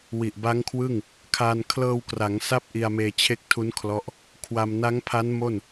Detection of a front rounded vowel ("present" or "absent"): absent